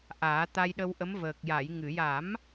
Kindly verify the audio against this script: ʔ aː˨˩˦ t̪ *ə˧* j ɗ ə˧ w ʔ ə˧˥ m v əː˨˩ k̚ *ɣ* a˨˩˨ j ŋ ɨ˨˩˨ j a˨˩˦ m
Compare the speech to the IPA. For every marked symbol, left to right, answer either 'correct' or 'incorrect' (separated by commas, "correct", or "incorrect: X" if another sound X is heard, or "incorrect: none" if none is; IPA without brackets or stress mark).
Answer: incorrect: a˧, incorrect: j